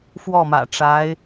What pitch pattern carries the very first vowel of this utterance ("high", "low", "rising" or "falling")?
falling